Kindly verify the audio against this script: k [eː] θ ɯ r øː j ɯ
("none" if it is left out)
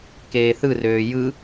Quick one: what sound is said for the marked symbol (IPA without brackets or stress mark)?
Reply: eː